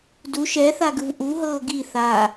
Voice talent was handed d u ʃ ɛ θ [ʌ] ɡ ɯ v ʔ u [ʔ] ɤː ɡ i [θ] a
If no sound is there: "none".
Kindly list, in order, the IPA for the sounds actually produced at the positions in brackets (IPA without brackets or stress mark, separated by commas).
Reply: a, ɦ, θ